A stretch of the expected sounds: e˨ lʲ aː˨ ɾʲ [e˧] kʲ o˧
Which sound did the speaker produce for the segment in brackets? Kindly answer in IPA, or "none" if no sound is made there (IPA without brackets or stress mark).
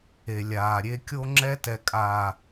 e˧